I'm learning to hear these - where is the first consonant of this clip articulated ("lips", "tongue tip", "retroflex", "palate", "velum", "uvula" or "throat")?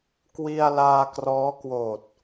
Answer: velum